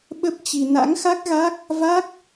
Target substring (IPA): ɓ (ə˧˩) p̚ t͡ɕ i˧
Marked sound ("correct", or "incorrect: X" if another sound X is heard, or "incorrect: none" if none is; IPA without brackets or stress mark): incorrect: ə˦˥